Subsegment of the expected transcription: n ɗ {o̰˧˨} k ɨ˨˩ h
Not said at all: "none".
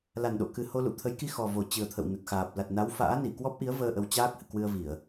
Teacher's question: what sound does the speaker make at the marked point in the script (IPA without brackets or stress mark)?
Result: o̰˧˨